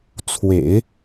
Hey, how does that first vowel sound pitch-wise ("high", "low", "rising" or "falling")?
low